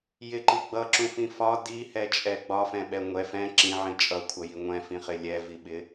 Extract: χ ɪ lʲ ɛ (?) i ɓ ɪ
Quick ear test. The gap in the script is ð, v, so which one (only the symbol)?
v